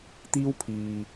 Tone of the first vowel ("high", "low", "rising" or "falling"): high